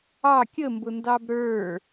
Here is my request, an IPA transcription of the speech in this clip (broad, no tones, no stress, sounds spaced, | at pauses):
ɑ kʲ ə m b ʊ n d ɑ b ɾ ə˞